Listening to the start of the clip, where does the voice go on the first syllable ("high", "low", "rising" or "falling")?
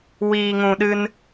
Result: low